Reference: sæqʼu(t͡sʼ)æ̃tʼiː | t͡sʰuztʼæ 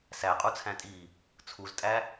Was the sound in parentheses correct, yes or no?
no